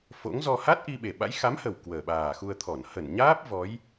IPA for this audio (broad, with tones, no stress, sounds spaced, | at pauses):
f o̰˧˥ ŋ z ɔ˧ h a˦˥ t̚ ʔ i˧ ɓ e˨˩ ɓ a̰˧˥ j x a˨˦ m h ə˨˩ w k w əː˨˩ ɓ aː˨˩ x u˧ ə̯ t̪ʰ ɔ˧˩ n h ə˧˩ n ɲ aː˦˥ p̚ v ɔ˨˦ j